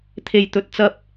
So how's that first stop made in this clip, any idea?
aspirated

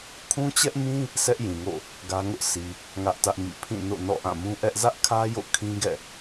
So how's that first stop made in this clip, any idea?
aspirated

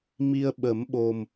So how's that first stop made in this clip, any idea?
implosive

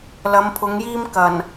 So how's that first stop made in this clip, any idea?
aspirated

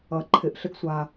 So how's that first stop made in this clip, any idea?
click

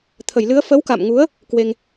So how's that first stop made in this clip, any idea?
aspirated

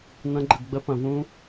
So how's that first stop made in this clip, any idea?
click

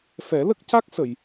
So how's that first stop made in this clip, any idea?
plain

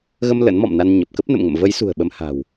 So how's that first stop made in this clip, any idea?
plain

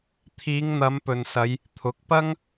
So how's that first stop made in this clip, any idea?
aspirated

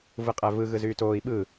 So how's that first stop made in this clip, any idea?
ejective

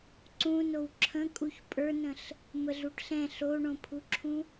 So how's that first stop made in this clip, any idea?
click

